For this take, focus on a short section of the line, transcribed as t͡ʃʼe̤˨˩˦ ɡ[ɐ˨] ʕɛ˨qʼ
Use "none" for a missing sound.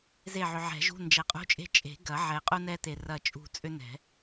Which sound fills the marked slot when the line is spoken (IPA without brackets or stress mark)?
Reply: ɐ˨˩˦